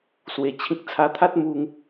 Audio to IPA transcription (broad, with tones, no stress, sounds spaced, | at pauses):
s w e˧ t͡ɕʰ ĩ˦ k̚ t͡sʰ a˧ t̪ʰ a˦ t̚ m u˦ ŋ